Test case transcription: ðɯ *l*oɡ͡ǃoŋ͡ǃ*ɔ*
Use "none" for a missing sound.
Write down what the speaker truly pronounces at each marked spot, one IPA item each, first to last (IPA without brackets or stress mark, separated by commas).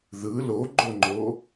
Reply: l, o